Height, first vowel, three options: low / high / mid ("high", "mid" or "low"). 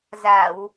low